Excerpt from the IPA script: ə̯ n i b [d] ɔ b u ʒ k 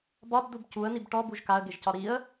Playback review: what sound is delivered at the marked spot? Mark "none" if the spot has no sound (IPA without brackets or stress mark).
ʈ